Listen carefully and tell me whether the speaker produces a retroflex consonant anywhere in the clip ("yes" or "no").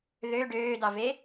yes